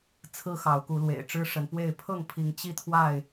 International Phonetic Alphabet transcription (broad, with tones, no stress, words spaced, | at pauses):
t͡sʰɹ̩˦ xɑ˨˦ʊ̯ku˨˦lwḛ˨˩ɪ̯ ʈ͡ʂɻ̩˦ʂə˨˦npwe˥˨ɪ̯ pʰɤ˥˨ŋpʰi˨˦ŋ t͡ɕi˥˨t̪ʰwa˥˨ɪ̯